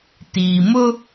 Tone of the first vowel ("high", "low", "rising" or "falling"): low